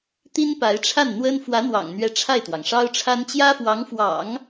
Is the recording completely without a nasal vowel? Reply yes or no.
yes